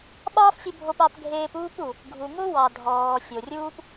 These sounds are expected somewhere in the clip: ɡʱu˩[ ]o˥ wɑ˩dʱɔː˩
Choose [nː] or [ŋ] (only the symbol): ŋ